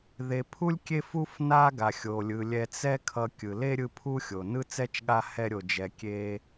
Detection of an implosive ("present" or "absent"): present